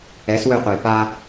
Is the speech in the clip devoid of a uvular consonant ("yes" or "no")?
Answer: no